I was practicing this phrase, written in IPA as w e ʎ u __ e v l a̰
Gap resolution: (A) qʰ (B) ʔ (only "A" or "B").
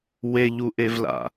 B